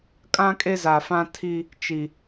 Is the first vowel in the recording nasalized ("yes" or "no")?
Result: yes